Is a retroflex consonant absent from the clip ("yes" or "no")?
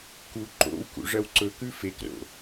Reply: no